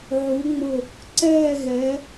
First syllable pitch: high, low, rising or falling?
rising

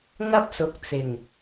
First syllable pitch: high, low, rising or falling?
high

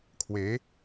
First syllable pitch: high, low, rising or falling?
rising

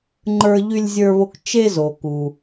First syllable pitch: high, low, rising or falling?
high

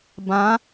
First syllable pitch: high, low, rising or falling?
rising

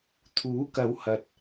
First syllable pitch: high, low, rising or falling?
rising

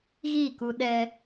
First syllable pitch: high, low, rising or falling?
falling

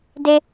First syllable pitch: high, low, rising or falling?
high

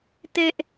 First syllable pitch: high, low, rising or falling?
high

